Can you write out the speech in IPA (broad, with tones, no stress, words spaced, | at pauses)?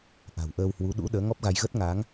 ʔa̤˨˩wʔəː˧whwu˨˦ ɗṵ˧˥ ɗəː˨˦ŋɔ˦˥p̚ɣa˧j ɣə˦˥t̚ŋaː˨˦ŋ